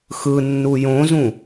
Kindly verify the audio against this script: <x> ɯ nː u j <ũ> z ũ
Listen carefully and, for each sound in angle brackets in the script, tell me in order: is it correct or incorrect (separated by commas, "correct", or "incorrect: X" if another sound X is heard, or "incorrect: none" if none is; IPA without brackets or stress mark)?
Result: correct, incorrect: õ